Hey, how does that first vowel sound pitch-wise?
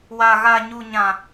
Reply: high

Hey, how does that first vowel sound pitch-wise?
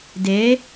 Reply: rising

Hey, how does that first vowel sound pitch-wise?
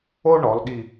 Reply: high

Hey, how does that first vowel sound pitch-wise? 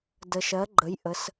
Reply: low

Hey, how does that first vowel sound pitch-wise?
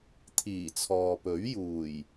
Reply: low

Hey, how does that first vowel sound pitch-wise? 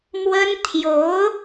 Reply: high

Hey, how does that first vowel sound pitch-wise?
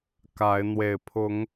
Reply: rising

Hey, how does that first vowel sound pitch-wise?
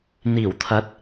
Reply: low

